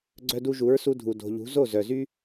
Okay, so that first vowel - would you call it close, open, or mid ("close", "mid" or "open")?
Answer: mid